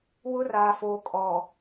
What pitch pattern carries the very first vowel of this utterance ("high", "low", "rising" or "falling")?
high